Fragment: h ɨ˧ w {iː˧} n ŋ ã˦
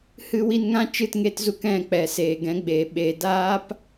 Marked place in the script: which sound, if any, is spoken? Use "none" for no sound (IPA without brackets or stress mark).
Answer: i˧